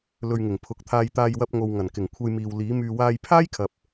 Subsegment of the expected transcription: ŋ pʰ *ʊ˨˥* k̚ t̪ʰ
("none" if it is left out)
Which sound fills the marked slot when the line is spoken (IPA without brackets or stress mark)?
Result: ʊ˨˥